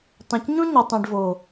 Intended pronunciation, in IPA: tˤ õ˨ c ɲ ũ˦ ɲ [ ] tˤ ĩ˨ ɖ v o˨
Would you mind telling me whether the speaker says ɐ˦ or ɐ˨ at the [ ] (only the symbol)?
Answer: ɐ˨